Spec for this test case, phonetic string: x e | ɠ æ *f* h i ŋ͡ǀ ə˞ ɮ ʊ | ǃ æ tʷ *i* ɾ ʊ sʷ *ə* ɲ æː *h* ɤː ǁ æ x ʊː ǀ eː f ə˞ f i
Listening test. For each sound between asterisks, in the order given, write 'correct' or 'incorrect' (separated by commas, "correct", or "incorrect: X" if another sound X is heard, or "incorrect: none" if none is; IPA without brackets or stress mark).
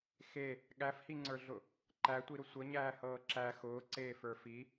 correct, correct, correct, correct